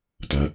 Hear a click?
no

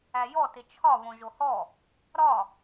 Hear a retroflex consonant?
no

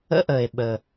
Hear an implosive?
yes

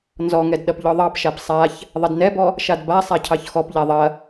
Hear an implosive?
yes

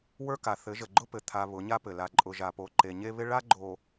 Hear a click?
yes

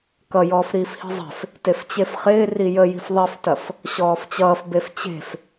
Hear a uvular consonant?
yes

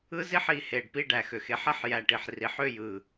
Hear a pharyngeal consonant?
yes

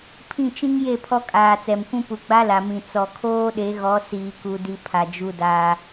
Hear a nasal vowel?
yes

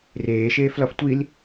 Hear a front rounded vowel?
no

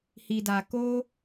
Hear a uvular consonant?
no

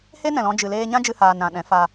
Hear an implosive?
yes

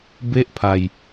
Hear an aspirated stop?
yes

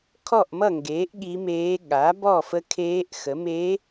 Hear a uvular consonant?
no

